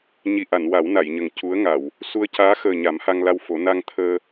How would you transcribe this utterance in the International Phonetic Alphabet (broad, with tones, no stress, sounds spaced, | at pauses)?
ɲ i˨˩ ʔ a˨˩˨ n w a˨˩˦ w n a˨˩˨ j ɲ ə˨˩ ŋ c u˧˥ ə̯ ŋ a˨˩˨ w | s u˧ ə̯ c aː˧˥ x əː˨˩ ɲ a˨˩˦ m h a˧ ŋ l a˧ w f o˨˩˦ n a˧ ŋ t̪ʰ əː˧